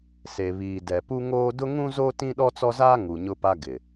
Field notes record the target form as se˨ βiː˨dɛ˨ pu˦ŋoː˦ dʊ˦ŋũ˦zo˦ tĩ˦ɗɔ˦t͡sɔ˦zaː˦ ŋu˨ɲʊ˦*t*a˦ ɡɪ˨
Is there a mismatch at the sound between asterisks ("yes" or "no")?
yes